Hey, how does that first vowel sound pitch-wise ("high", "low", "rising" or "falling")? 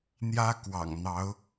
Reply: high